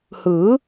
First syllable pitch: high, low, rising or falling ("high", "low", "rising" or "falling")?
rising